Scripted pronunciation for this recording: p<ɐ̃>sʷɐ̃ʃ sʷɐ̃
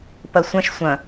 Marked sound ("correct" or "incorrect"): incorrect